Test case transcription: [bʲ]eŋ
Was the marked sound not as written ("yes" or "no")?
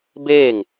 yes